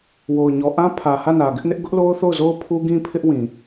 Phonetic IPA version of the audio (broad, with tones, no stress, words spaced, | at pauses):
wo˨ʊ̯ɲɔ˨ʔã˦ pʰä˨ hä˦˨nä˨ɡɪ˦ʔnɪ˦ʔ ɡʊ˦ʔlo˦ʊ̯θo˦˨ʊ̯zo˦ʊ̯ pʰu˦ɡĩ˦pʰɪ˦ʔwĩ˨